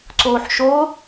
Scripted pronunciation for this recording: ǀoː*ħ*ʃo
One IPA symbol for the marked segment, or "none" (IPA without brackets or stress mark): ħ